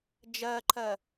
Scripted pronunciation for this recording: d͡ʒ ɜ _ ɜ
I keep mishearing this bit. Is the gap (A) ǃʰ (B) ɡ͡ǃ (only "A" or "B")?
A